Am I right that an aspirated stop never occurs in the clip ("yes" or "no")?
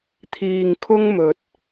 no